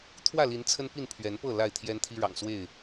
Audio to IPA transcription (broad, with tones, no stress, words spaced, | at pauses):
t̪ʰwä˥˨li˨˦n t͡sʰə˦npi˥˨n pʰɥɛ˨˦npɤ˥˨ la˥˨ɪ̯t̪ʰjɛ˦nt̪ʰi˦ ɻɑ̰˨˩ŋswe˥˨ɪ̯